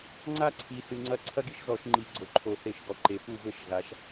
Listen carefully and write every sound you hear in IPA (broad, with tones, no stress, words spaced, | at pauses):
ŋ͡ǀa˥ǀʰi˩˧ sɨ˩˧ŋ͡ǀɐ˥˩ ǀʰɐ˥ɡi˥ʃzɔ˧˩˧ʃ ŋ͡ǃi˧˩˧ɡ͡ǀo˩˧ǃʰo˧˩˧ θe˧˩˧ʃɡɔ˩˧ ǃe˩˧pu˥˩ vɘ˥˩ʃ ɣa˩˧ʃ